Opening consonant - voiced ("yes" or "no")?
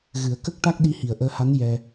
yes